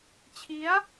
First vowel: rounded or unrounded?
unrounded